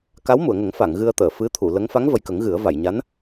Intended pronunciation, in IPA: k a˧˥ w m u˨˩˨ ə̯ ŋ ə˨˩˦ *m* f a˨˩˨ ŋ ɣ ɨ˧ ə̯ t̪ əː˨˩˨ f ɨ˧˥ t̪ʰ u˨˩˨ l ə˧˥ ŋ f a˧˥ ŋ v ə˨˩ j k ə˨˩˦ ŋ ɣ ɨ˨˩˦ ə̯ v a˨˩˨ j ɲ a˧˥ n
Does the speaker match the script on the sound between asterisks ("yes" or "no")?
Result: no